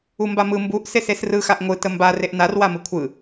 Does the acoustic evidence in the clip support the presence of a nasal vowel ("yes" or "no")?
no